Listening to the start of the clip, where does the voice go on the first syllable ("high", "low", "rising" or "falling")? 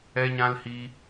high